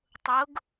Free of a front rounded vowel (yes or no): yes